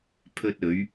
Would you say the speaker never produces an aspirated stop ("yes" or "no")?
no